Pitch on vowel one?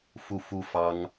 falling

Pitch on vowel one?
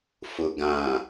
low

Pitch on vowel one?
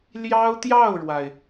high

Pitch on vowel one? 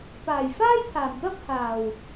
low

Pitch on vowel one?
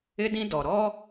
high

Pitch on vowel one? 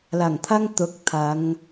low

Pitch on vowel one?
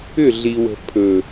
falling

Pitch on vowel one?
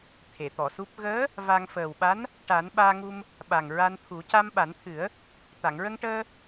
low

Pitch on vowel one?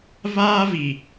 high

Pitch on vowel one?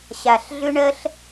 low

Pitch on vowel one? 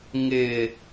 low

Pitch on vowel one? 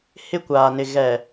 high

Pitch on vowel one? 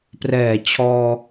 low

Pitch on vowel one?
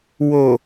low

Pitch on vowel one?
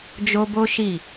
high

